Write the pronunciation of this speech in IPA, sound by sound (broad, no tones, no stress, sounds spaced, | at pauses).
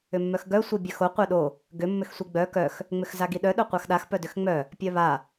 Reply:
ʏ mː œ x ɡ œ sʷ i bʲ œ x o qʷ œ ɗ o | ɡ ʏ mː ʏ x sʷ i ɡ͡b œ k œ x | ŋ͡m ʏ x z a ɡ i ɗ œ ɗ œ qʷ a x ɗ a x p œ d ʏ x ŋ͡m œ | pʲ œ β a